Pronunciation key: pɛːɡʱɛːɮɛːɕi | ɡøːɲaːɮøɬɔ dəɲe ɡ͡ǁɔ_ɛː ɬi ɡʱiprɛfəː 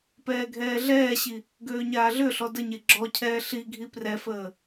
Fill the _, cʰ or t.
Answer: cʰ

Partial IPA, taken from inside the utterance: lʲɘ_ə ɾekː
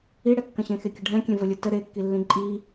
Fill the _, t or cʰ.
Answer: t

